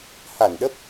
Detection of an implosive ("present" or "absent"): present